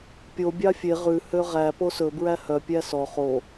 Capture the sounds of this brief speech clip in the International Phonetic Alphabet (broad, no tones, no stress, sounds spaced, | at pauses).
pʲ o bʲ ɑ fʲ e ʁ ʉ h ø ʁ æ p o s ɵ b ɹ æ h œ pʲ æ s ɔ χ o